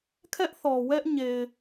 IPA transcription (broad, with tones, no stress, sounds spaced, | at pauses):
kʰ ɛ˦ ʔ θ ɔ˨ w ɛ˦ ʔ ɲ e˨ ɪ̯